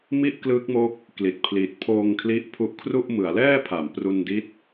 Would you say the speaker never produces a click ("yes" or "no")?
yes